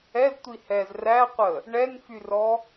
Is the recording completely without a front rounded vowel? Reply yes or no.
no